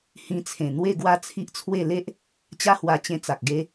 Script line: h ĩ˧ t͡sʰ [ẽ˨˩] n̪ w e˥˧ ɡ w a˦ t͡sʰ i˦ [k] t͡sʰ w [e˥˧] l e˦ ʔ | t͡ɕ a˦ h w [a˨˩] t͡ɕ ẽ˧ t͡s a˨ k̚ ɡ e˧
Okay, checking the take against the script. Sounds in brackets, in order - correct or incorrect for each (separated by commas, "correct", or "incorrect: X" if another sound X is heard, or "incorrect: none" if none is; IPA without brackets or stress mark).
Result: correct, incorrect: ʔ, correct, incorrect: a˧